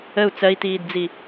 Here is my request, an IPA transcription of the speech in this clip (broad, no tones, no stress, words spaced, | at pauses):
əu̯ t͡sɜi̯tiːdd͡zi